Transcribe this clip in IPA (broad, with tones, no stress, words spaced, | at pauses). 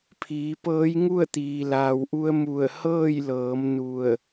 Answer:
pʰiː˩˧pɤː˧˥j ŋu˥˨ə̯t̪iː˩laː˩wʔu˧ə̯ mu˧˩ə̯ hɤː˥˨jlɤː˩˧m nu˧˩ə̯